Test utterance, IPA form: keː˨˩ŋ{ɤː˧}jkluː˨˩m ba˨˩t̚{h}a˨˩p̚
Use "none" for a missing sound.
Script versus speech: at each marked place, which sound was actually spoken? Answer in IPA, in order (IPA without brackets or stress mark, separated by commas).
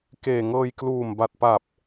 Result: ɤː˧, p